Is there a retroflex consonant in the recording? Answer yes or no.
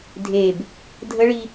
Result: yes